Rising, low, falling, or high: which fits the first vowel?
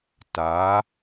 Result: rising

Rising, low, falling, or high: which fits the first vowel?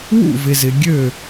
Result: falling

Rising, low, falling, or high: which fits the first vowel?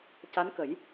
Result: rising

